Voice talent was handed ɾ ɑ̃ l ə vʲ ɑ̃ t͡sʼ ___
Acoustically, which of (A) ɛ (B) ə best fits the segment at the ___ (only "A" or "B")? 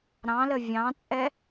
A